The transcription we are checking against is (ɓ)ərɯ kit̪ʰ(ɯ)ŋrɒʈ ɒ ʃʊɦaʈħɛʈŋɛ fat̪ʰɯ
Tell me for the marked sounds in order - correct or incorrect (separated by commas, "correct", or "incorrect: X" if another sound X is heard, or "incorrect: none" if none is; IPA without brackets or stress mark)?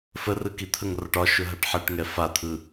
incorrect: f, incorrect: ə